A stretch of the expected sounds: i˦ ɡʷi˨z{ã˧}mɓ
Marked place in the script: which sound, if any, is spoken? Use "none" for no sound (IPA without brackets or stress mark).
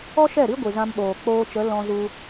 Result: ã˧